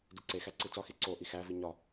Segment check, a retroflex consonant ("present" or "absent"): absent